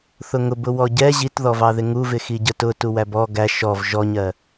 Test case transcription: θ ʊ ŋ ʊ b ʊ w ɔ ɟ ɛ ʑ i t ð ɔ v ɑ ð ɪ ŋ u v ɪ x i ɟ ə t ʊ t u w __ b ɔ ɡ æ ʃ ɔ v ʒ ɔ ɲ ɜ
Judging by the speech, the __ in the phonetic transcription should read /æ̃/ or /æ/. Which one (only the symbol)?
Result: æ